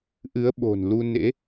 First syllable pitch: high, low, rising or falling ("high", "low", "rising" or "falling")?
rising